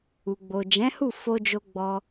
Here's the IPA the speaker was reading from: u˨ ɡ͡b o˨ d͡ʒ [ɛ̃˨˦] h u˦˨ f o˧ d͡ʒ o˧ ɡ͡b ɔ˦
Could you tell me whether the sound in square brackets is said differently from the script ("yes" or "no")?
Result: no